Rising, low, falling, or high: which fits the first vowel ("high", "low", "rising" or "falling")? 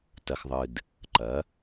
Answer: low